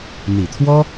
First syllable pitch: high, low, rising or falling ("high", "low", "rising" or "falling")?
low